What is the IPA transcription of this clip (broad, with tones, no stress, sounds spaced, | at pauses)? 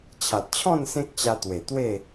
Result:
t͡ɕʰ a˨ t̚ t͡ɕʰ ɔ̃˥˧ n s ẽ˦ k̚ t͡ɕ a˧ t̪ w e˨˩ t̪ w e˥˧